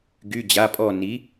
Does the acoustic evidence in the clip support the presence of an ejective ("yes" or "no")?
yes